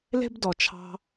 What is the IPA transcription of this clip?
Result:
le̤˥bdɔ˨t͡ʃʰɑ̤˦

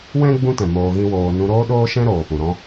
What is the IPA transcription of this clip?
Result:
wɛ̃˦ ɡ͡bũ˦tɛ̃˨ moː˧ɣĩ˦woː˧ nũ˧ɾoː˦ɗoː˦ʃɛ̃˦ ɾoː˨pũ˨ɾɔ̃˦

